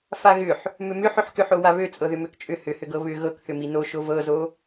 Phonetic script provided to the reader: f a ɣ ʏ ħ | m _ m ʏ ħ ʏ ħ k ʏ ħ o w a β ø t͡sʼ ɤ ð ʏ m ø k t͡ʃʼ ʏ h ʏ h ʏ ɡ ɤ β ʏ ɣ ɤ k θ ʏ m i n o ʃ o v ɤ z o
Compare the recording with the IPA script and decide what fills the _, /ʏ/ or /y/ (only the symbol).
ʏ